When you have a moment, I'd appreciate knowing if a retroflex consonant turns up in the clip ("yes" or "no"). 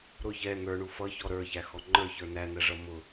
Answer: yes